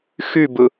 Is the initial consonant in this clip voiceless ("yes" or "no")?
yes